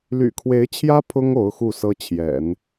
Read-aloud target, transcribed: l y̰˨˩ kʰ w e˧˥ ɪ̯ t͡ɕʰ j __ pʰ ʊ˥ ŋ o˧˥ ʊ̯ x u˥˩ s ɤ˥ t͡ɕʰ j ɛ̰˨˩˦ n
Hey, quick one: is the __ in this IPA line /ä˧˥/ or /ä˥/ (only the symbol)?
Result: ä˥